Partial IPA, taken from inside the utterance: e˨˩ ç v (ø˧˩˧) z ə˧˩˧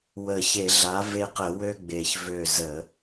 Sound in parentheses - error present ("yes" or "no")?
yes